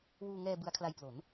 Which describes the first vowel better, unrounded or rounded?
rounded